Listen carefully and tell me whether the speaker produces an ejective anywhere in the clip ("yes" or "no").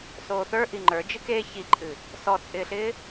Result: yes